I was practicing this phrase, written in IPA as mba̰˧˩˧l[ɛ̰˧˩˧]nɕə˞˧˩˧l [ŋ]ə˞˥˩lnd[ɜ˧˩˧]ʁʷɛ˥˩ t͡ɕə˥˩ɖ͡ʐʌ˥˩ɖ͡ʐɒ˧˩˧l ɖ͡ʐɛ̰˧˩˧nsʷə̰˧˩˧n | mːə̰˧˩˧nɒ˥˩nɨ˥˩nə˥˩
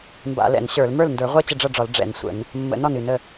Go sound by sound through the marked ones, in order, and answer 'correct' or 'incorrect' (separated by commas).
correct, incorrect, incorrect